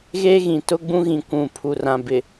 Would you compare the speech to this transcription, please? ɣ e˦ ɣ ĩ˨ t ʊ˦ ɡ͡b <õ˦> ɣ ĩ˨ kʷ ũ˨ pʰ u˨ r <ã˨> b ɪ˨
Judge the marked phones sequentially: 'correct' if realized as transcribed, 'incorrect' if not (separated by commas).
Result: incorrect, correct